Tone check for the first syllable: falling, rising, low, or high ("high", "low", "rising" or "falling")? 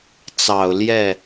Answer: low